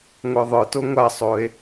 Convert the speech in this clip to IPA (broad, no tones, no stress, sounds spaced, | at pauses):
ŋʷ ə˞ ðˤ ə˞ t o ŋʷ a sˤ o e̯